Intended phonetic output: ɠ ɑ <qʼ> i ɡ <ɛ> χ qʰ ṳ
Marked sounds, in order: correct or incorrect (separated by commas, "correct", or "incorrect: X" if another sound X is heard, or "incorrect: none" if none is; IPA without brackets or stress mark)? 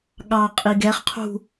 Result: correct, correct